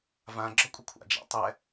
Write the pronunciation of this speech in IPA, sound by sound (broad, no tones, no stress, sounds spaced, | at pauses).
v ã ɡ͡ǁ ɒ kʷʼ ə kʷʰ a̰ d͡ʒ a̰ tˤ ɛ